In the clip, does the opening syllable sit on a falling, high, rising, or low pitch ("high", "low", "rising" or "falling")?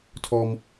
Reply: high